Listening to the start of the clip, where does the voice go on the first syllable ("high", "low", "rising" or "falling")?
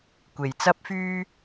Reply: low